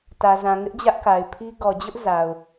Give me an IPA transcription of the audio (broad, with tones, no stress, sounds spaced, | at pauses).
t ä˨ z ã˨ ŋ ɪ˦ ʔ d͡ʑ ä˦ ʔ k a˨ ɪ̯ pʰ i˦ ɡ ɔ˨ d͡ʑ ʊ˦ ʔ z a˨ ʊ̯